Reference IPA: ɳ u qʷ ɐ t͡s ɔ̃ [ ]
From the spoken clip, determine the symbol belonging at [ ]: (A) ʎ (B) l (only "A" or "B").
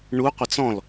B